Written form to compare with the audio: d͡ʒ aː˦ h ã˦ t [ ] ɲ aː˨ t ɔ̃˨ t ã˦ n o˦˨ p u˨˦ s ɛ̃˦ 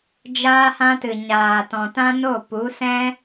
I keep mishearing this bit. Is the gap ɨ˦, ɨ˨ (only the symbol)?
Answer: ɨ˨